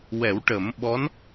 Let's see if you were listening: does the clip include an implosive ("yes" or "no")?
yes